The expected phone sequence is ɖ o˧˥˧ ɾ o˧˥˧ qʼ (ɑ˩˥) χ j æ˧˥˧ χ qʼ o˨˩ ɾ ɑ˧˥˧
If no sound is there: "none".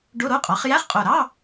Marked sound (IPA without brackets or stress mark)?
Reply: ɑ˩˥